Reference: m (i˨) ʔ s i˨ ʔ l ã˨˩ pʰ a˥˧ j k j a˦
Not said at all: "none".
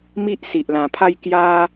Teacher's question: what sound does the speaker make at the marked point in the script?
i˦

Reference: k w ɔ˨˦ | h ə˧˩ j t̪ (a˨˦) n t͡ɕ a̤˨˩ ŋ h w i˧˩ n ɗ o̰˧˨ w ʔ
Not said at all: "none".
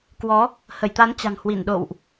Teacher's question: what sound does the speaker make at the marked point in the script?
a˨˦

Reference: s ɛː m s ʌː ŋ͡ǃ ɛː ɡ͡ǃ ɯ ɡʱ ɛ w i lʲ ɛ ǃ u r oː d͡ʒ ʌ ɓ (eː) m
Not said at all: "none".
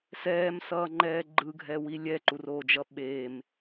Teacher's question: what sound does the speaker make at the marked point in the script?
eː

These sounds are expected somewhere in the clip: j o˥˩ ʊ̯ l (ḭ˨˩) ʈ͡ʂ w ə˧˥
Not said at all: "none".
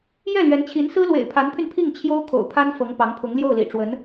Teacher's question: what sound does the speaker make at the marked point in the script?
ḭ˨˩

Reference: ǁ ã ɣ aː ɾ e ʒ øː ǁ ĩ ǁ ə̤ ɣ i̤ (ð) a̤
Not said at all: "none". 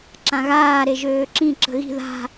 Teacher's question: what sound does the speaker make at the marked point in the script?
ð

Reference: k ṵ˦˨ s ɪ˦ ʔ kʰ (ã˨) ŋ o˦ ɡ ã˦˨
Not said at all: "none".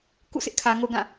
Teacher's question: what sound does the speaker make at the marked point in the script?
ä˨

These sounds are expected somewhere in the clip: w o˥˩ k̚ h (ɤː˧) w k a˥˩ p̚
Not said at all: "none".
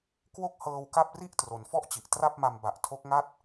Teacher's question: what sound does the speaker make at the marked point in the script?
ɤː˧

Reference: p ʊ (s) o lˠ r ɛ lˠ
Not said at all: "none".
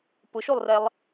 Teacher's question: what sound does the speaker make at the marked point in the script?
ʃ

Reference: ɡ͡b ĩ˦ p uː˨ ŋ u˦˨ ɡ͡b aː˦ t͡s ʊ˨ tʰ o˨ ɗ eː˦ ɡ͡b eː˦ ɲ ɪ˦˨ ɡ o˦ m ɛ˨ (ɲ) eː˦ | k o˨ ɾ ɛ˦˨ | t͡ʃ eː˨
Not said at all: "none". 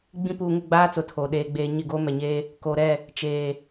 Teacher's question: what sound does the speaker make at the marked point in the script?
ɲ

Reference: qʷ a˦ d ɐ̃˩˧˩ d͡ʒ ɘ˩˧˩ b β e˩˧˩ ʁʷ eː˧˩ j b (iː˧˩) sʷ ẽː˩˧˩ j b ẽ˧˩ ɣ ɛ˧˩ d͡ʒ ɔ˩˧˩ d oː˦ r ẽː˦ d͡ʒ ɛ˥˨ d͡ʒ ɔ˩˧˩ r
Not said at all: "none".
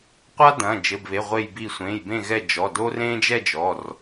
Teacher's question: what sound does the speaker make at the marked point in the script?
iː˧˩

